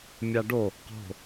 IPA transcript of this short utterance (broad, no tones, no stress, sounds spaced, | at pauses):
mʲ a ɖ o | q o̤